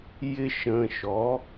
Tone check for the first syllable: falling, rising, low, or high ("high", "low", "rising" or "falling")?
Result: high